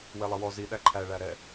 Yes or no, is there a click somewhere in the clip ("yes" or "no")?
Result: yes